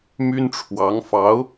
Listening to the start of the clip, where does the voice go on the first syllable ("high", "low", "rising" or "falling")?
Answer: high